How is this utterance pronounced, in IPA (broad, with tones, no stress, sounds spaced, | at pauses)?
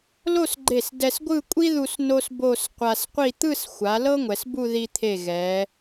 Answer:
l o˥˧ s ɡ͡ǃ e˧˩ s d ɛ˧ s ɡʷ ɯ˥˧ kʷʼ i˥ ð u˧ s n o˥ s b o˥˧ s qʷ a˧ s qʷ i˥˧ t̪ ɯ˥˧ s xʷ a˩˧ l ɤ˥ ŋʷ ɛ˩˧ s b u˥˧ ð i˧ t̪ʰ e˧˩ ɣ ɛ˩˧